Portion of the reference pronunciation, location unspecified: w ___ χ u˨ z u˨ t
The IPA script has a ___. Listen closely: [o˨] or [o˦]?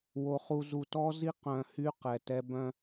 o˨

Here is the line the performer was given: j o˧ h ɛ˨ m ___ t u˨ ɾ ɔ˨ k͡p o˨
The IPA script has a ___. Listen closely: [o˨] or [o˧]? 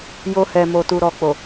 o˨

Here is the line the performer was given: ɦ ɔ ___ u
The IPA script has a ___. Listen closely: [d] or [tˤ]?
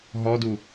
d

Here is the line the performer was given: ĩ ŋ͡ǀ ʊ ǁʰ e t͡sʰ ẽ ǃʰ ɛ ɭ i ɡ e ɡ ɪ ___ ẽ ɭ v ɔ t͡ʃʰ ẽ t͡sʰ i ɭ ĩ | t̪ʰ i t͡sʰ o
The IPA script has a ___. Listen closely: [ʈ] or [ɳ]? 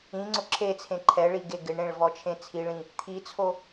ɳ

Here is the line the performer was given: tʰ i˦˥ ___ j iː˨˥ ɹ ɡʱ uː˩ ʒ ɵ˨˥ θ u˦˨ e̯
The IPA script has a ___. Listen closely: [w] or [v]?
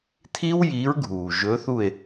w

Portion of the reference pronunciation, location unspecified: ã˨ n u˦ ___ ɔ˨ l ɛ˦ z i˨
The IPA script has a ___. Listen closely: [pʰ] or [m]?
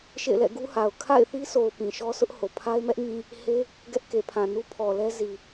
pʰ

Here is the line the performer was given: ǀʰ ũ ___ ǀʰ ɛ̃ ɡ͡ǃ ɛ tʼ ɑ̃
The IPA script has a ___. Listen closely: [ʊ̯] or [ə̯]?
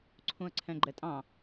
ə̯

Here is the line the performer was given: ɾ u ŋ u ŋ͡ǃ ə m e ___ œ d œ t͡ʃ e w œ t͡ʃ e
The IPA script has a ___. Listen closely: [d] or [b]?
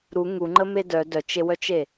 d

